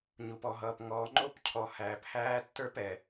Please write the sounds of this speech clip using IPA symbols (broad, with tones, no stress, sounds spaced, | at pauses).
ɲ u˨ p ɔ˨ ɦ ʌː˨ p ŋ ɔː˨ ŋ͡ǃ o˦ p cʰ ɔ˨ h æː˨ p h æː˦ tː ə˞˦ p ɛ˨